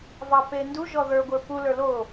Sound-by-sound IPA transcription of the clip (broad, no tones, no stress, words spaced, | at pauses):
vɑpendu ʒɔðə˞ ɡʷə˞pu lə˞lo